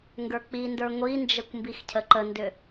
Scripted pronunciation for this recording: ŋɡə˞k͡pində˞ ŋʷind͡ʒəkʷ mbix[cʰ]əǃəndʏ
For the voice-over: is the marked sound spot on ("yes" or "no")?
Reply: yes